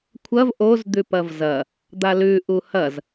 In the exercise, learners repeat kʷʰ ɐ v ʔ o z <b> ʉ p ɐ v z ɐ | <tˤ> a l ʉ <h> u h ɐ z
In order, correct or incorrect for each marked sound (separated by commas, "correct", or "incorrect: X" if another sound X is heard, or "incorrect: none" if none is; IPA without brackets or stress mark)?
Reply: incorrect: d̪, incorrect: d̪, incorrect: ʔ